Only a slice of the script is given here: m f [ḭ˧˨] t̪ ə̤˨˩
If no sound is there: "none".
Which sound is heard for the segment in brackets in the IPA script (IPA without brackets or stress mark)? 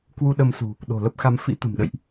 ḭ˧˥